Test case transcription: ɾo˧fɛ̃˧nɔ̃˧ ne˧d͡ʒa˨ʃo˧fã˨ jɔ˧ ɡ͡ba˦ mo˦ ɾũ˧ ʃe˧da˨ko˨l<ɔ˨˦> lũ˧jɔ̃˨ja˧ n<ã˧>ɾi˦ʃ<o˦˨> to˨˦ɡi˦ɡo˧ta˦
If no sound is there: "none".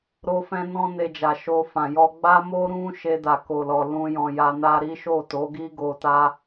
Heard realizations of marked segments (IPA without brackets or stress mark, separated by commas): ɔ˨, a˧, o˦˨